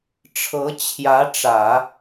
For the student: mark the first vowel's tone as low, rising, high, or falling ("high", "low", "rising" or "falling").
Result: rising